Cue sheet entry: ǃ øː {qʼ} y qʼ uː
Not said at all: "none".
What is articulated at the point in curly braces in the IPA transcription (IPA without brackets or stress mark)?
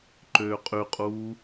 qʼ